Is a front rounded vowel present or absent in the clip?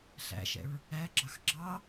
absent